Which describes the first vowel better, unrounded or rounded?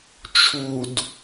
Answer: rounded